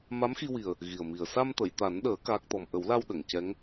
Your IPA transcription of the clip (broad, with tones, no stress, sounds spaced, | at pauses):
m a˧˥ m x i˧ w i˨˩ ə̯ | ɣ i˨˩ ə̯ m i˨˩ ə̯ s a˧ m t̪ ə˨˩˨ j t̪ a˨˩˦ n ɗ əː˨˩˦ k aː˦˥ k̚ t̪ ɔ˧ m ʔ ə˨˩˦ w l a˧ w ɗ ə˨˩˨ ŋ c ɛ˧˥ ŋ